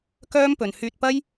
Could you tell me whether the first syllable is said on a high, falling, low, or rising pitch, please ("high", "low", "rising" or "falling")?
high